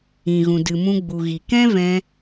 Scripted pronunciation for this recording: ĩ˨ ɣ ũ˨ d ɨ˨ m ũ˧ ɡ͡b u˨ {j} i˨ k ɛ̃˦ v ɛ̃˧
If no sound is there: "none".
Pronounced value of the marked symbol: ɣ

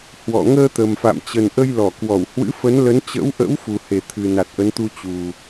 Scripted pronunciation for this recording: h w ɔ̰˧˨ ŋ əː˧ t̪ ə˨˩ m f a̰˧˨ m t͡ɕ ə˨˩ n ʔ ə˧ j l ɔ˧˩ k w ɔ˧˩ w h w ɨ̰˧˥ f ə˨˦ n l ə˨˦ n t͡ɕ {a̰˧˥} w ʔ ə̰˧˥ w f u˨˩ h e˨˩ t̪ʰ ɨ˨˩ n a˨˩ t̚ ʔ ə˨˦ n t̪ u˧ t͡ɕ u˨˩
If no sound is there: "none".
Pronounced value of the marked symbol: ə̰˧˥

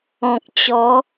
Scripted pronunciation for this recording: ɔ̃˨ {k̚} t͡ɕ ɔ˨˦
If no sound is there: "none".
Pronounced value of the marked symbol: k̚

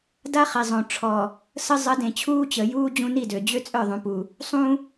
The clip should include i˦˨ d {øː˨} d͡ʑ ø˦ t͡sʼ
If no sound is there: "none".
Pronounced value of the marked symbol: ø˨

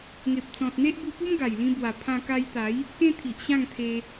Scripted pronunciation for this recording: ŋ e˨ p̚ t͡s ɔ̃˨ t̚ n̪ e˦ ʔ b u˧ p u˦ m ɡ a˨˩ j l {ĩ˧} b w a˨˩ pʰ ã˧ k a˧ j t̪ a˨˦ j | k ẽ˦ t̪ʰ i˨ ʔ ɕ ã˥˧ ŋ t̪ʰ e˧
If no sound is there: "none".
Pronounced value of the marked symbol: ĩ˧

